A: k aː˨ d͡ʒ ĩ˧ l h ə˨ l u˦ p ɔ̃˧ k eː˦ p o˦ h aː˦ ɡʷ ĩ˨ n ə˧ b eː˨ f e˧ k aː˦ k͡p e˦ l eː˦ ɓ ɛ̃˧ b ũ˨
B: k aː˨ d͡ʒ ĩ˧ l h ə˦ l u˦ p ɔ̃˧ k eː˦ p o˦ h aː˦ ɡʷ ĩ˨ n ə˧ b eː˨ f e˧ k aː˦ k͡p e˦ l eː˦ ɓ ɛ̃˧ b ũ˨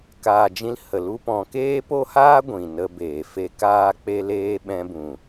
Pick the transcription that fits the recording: A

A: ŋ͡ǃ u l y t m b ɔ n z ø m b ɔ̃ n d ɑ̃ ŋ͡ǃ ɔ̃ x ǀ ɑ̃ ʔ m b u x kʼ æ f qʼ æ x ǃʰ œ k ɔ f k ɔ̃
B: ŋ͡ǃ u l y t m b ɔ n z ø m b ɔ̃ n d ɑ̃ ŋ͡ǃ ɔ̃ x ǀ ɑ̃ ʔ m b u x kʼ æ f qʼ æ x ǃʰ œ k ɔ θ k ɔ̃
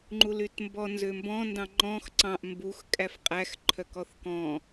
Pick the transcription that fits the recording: B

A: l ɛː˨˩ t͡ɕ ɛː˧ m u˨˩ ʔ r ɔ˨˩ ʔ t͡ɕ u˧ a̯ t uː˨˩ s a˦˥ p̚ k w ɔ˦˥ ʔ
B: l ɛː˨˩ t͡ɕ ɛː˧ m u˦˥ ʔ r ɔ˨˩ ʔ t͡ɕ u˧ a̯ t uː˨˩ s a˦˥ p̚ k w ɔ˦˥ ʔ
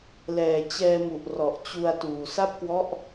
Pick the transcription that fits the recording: A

